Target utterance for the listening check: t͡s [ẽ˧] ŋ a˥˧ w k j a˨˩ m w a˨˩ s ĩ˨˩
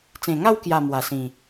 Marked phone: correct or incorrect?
incorrect